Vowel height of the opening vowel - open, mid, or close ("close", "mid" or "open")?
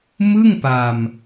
close